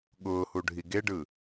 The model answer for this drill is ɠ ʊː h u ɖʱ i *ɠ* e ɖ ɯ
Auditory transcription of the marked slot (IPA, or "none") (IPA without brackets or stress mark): ɡ